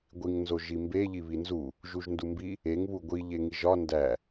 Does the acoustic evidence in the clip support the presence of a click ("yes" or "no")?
no